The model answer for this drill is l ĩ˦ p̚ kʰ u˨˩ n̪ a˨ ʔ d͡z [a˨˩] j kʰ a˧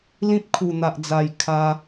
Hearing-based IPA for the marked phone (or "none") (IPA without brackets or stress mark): a˨˩